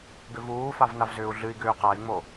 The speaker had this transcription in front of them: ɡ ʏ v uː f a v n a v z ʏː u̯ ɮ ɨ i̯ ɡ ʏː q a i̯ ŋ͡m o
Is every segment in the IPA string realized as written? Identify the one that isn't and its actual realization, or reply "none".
none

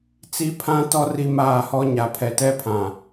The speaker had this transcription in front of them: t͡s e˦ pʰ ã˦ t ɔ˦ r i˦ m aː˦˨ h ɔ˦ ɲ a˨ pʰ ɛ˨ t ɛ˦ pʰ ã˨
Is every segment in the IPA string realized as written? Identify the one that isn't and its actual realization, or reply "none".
e˦ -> i˦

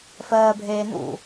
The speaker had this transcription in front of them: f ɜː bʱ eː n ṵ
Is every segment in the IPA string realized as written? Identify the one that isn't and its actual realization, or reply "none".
none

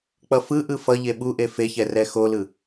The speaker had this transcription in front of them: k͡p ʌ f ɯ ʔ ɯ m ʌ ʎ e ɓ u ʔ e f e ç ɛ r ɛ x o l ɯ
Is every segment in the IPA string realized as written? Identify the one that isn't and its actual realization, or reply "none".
m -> f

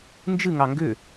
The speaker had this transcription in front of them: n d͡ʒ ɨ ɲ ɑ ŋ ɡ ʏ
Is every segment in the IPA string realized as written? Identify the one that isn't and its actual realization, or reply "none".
ɲ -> ŋ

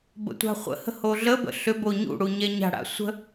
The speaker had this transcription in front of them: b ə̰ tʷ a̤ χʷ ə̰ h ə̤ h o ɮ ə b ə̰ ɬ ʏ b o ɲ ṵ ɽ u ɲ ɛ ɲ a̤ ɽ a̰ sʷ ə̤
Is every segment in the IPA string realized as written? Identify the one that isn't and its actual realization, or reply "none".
none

